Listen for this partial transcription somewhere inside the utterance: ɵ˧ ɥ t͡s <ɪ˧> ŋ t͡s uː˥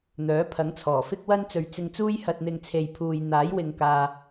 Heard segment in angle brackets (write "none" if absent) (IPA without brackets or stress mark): ɪ˧